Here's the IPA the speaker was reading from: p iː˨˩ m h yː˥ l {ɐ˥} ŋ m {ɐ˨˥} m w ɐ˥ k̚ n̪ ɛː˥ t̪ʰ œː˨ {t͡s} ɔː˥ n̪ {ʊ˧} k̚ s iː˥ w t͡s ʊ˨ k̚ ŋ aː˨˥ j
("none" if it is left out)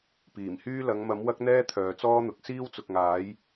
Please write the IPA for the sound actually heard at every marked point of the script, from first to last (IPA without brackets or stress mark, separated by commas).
ɐ˨˧, ɐ˨˥, t͡s, ʊ˨